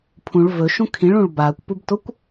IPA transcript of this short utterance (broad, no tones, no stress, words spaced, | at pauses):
pʰũɭ vɵʃũ kʰĩɭũɭ baːkʷpubtokʷ